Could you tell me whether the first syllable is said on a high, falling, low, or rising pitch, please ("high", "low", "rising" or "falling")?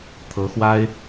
rising